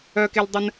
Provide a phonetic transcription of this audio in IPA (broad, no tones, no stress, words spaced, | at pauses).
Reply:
œkeldˤən